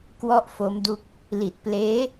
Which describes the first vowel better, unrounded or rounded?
rounded